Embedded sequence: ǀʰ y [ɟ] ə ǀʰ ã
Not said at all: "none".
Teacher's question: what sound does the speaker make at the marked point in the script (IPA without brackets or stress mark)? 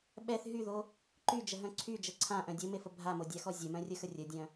d͡ʒ